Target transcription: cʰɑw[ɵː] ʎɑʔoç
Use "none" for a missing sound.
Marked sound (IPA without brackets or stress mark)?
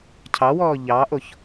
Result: ɔː